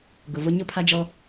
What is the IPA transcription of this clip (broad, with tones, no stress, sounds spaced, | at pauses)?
ɡ ʊ˨ v ʊ˦ ɲ ʊ˦ pʰ a˦ d͡ʒ ɔ˦